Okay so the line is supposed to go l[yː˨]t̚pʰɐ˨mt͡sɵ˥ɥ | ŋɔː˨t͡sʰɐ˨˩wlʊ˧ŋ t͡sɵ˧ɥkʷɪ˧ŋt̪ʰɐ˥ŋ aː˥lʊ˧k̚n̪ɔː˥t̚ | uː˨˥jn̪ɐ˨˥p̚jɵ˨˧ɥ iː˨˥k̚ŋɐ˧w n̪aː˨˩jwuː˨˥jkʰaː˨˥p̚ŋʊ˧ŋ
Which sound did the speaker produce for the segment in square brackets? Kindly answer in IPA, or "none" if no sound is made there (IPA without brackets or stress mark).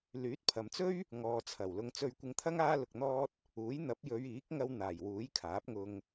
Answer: yː˨˥